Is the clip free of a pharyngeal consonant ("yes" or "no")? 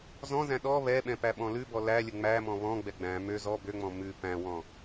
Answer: yes